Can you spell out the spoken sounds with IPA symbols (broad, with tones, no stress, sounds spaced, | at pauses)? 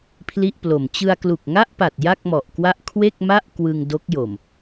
pʰ l i˥˩ ʔ p l o˨˩ m t͡ɕ ɯ˧ a̯ k l u˨˩ k̚ ŋ a˥˩ ʔ p a˨˩ t̚ j a˥˩ k̚ m ɔ˨˩ ʔ k w a˥˩ ʔ kʰ w e˥˩ k̚ m a˥˩ ʔ k w ɯ˧ ŋ d o˦˥ k̚ j o˨˩ m